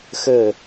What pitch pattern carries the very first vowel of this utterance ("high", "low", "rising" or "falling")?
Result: falling